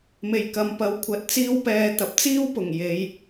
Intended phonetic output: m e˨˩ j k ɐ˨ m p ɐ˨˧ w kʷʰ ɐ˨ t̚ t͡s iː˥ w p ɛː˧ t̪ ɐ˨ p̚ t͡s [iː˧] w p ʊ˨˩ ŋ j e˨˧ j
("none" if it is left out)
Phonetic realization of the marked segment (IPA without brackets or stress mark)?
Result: iː˥